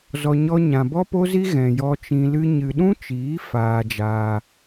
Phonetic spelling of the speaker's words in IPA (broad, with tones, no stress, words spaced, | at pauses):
zɔ˧ɲɔ˦ ɲã˨bɔ˦po˦zi˦ ɣɛ̃˨jɔ˧t͡ʃĩ˧ lɨ˦ɲɨ˧ ɗũ˦t͡ʃiː˨˦ faː˧d͡ʒaː˧